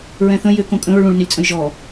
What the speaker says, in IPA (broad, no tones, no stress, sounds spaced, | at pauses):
ɹ ɛ̃ θ ə̃ j ʏ k õ kʼ ə̃ ɹ ɭ ũ ɭ n ʏ lʲ t͡sʼ ə̃ j ʒ ɔ